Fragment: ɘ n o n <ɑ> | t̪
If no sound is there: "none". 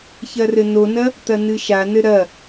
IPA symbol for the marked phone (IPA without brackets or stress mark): ɐ